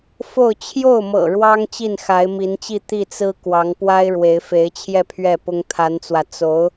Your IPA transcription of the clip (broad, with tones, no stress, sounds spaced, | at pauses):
f o˥˧ ʊ̯ t͡ɕʰ j o˥˩ ʊ̯ m ɤ̰˨˩ ɻ w ɑ˥ ŋ t͡ɕ i˥˩ n x a˧˥ ɪ̯ m i˧˥ n t͡ɕ i˥˧ t̪ i˥˩ t͡s ɹ̩˥ k w ɑ˧˥ ŋ p w a˥ ɪ̯ ɻ w e˧˥ ɪ̯ f e˧˥ ɪ̯ t͡ɕʰ j ɛ˥˧ pʰ ɥ ɛ˥˩ p ʊ˥ ŋ t̪ʰ a˧˥ n t͡s w ä˧ t͡s o˧˥ ʊ̯